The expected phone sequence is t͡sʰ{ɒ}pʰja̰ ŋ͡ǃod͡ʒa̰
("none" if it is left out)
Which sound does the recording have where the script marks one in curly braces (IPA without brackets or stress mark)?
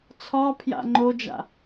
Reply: ɒ